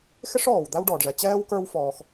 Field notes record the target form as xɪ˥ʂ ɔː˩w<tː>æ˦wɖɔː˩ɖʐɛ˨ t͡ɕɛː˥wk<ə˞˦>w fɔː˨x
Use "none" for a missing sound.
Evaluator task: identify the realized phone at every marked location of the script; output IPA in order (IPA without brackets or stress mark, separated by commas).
d̪, ə˞˦